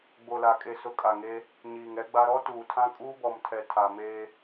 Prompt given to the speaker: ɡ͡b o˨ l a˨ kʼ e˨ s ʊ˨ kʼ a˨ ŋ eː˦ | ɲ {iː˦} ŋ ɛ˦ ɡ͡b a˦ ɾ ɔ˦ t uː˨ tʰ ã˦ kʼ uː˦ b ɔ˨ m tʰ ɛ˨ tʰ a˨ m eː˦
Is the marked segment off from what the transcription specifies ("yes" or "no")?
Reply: yes